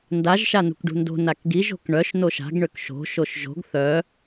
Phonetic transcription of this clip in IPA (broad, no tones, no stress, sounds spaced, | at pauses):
n d a ʒ ʃ a n ṳ k ɖ ṳ n d o̤ n a k ɡ i ʒ o̤ k ɳ œ ʃ n o ʃ a̤ ɡ ɳ ø k ʃ o̤ ʃ o ʃ ʒ o̤ ɡ θ œ